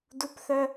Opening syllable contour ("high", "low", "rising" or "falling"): high